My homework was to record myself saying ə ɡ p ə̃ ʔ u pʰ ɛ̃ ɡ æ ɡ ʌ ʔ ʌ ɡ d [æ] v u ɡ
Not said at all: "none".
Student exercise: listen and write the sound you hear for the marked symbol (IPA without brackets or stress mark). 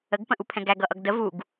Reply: ə